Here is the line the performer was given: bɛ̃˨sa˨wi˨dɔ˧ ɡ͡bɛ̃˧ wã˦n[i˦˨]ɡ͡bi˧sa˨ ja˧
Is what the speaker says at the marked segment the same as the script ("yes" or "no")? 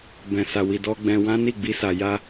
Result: yes